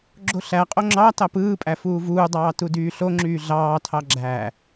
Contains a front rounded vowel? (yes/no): yes